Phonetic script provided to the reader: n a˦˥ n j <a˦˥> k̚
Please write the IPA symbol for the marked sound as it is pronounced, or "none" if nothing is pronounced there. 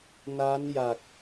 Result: a˨˩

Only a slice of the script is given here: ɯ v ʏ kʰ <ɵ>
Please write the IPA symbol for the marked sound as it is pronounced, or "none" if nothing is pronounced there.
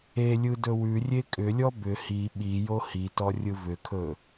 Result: ɵ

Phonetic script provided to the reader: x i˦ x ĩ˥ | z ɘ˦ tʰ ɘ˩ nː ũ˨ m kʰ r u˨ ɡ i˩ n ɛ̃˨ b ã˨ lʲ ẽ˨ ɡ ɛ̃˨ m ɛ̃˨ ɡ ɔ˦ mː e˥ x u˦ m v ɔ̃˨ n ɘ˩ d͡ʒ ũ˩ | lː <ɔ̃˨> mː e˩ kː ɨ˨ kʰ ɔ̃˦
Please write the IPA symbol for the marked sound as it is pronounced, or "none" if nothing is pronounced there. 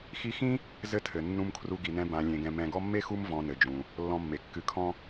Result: ɔ̃˨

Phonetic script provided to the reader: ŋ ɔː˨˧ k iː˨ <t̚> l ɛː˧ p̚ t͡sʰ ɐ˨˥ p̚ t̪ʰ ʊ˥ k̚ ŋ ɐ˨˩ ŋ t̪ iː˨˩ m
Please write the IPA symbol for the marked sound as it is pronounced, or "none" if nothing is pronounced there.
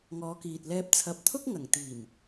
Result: t̚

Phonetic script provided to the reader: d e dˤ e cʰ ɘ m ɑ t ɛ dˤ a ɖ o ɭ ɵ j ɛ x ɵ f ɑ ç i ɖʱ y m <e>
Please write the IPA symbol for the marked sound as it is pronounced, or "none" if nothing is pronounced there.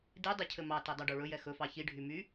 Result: y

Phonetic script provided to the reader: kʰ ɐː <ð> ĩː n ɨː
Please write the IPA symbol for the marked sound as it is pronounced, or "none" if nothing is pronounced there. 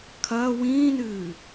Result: w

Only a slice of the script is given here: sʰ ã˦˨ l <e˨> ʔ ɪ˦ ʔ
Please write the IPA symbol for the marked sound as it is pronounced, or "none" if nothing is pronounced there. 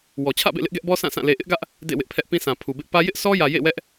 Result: e˨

